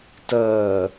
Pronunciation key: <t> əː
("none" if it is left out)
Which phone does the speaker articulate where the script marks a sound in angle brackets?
t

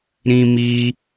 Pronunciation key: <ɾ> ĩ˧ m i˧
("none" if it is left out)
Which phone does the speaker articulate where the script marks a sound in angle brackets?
ɾ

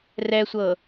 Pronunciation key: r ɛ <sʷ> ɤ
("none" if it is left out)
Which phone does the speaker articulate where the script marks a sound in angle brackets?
sʷ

